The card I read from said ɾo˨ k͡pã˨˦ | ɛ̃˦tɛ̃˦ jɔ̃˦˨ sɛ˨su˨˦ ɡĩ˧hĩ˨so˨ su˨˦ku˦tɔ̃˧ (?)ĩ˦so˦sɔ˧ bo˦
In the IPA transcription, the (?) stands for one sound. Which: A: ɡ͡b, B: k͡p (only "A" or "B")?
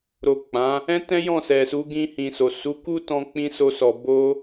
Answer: B